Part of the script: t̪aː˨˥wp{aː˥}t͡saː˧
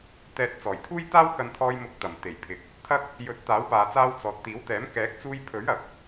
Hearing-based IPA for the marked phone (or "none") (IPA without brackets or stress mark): aː˨